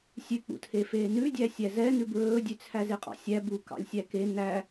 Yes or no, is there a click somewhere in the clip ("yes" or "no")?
no